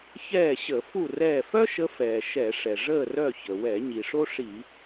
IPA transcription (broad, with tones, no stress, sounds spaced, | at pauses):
ç ɛː˦˨ ɕ ə˧˩˧ f u˦˨ r ɛː˦˨ f œ˥ ʃ ə˨˦ f ɛː˩ ʃ ɛ˧˩˧ ʂ ɛ˩ ʐ əː˦˨ r œ˦˨ ç ə˩ w ɛ˧˩˧ ɲ i˩ ʂ o˥ ʂ i˧˩˧